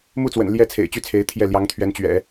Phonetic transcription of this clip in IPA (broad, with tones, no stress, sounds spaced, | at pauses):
m u˥˩ t͡s w ə̰˨˩ n l j ɛ˥˩ t͡sʰ ḛ˨˩ ɪ̯ t͡ɕ y˥˩ t͡sʰ e˧˥ ɪ̯ t̪ʰ j ɛ˥˩ l j ɑ˧˥ ŋ t̪ʰ ɥ ɛ˧˥ n t͡ɕ ɥ ɛ̰˨˩˦